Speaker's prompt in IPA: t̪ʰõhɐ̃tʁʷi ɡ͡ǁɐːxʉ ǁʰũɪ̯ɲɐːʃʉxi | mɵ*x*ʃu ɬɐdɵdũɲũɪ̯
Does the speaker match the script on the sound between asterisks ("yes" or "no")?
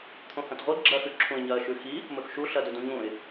yes